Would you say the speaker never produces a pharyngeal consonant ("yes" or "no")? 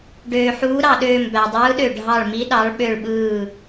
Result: no